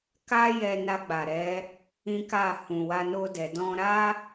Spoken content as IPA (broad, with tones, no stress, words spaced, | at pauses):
ka˦jɛ˧ na˧ɡ͡ba˨ɾɛ˨˦ | ĩ˦ka˦˨ hũ˨wa˧no˧dɛ˨ dɔ̃˧ɾa˦